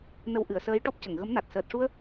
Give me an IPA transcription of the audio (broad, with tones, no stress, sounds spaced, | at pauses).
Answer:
n ə˧ w ʔ ɨ˨˩˨ ə̯ s əː˧˥ j ʈ ɔ˦˥ p̚ c ə˨˩˨ ŋ ɣ ə˧˥ m n a˨˩ t̚ s əː˨˩ t̚ ʂ u˧ ə̯